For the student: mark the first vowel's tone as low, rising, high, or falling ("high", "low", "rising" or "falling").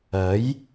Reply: rising